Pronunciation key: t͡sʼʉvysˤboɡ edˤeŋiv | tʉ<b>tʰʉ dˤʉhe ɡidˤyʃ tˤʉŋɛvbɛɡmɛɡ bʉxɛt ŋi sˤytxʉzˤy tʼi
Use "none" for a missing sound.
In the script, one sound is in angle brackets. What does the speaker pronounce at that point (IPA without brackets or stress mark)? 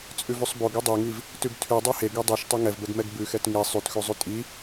b